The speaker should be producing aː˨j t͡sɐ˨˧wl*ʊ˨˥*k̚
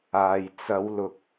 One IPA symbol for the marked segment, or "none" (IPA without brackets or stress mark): ʊ˨